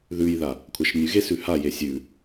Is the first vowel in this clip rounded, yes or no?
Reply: yes